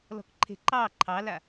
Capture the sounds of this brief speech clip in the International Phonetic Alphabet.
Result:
l ɔ̤ k ǃʰ e̤ ǃ ɑ ǃʰ ɑ l a

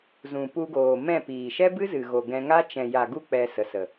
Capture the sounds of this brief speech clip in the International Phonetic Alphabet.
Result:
z ũ˨ p u˧ ɡ oː˨ m ɛ̃˦˨ p iː˨ ʃ ɛ˦ b ɨ˦ z ɨ˨ ɣ o˨ ɡ ɛ̃˧ ŋ a˦ t͡ʃ ɛ̃˨ j a˨ ɡ u˦ k͡p ɛ˧ s ə˨ s ə˨

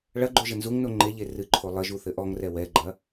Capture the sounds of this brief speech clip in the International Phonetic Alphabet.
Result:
ɭ ɐ ɡ͡ǃ o ʒ ɘ n z u ŋ n o ŋ͡ǃ e ʎ e r ɨ ǃʰ o lˠ ɘ ʒ u θ ɘ ʔ ɔ ŋ r ɛ w ɛ ɡ͡ǃ ɐ

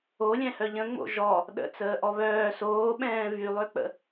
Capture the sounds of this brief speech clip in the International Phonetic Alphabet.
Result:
o lʲ ɛ̃ h œ ʎ ə̃ ŋ͡m o̰ ʒ ɔ | ɗ ə̰ t͡s əː ʔ ɔ β œː s oː ɓ ɛ̃ː v y lˠ ø k͡p ə̰

